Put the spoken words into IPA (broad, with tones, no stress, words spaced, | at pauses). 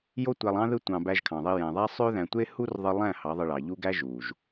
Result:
jo˦tʷæ˧lˠɑ̃˦ ðɯ˦tʷɑ̃˧ bæ˧ʒkʰɑ̃˨ðˤi˧ jæ̃˨ðˤæ˦ sˤø˦ðæ̃˧tʷe˦ hu˦rðˤɯ˧lˠæ̃˦˨ hɑ˨˦ðˤɯ˧ɭɑ˨ʎu˦ ɡæ˦ʒuː˨ʒ